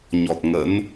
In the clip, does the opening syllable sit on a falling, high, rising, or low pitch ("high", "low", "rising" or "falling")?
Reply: low